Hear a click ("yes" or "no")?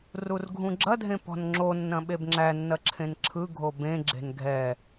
yes